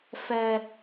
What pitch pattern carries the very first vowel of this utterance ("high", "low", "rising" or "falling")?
high